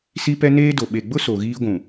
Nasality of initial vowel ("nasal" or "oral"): oral